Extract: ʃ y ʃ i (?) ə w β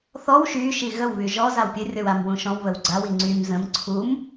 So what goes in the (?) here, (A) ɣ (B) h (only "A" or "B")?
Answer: A